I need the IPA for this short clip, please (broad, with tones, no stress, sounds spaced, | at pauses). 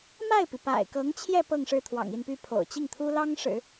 m a˥˩ ɪ̯ p i˩ p a̰˨˩ ɪ̯ k ɤ˧˥ ŋ t͡ɕʰ j ɛ˥˧ p ɤ˥˧ ŋ ʂ ɻ̩˥˩ t̪ʰ w ɑ̰˨˩ ŋ i˥˧ n p y˥˩ pʰ o̰˨˩ ʊ̯ t͡ɕ i˥˩ ŋ t̪ʰ u˥ l ɑ˥ ŋ ʂ ɻ̩˨˩˦